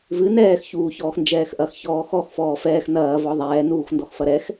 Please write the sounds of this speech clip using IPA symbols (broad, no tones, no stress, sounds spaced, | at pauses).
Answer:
v ɨ n ɛː x ç uː ç ɔː x n d͡ʒ ɛː x ʔ ɐ x ç ɔː x ɔ x f ɔː f ɛː x n ɐː v ɔ ðˤ ɛː n uː x n d ɔ x f ɐ ɾ ɛ x